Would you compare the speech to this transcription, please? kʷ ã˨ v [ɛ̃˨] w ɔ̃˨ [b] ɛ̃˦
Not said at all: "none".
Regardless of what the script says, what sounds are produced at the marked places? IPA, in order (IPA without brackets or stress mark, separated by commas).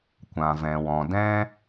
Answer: ɛ̃˨, d